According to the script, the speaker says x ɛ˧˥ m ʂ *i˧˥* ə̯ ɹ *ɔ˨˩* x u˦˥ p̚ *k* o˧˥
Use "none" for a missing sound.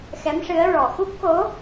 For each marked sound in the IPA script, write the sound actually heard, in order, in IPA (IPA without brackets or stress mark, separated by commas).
ɨ˧˥, ɔ˨˩, k